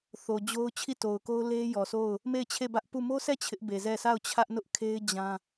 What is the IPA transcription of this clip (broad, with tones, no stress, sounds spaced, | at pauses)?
θ o˨ d͡ʑ o˦ ʊ̯ t͡ɕʰ i˦˨ t o˨ ʊ̯ k o˦ ʊ̯ l e˦ j ɔ˨ sʰ o˦˨ ʊ̯ | m e˦˨ ɪ̯ t͡ɕʰ e˦˨ b ä˦ ʔ p u˦˨ m o˦ s ɛ˦˨ t͡ɕʰ ɪ˦ ʔ b e˨ z ɛ˦˨ s a˦˨ ʊ̯ t͡ɕʰ ä˦ ʔ n ʊ˦ ʔ kʰ e˦ ɪ̯ d͡ʑ ã˦